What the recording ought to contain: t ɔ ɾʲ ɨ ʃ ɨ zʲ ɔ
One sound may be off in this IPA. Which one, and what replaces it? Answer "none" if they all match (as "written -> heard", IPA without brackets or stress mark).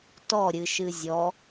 none